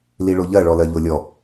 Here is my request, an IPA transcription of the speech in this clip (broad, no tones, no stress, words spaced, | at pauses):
liɭoʎɜ ɭɔlɜʎolʲɔ